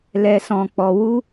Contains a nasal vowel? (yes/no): yes